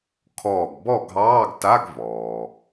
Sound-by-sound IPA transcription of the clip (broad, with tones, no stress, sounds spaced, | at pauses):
kʰ ɔː˧˩ ɡ b ɔ˥˨ ɡʱ ɑː˧˥˧ ɡ t a˧˥˧ ɡ v ɔː˩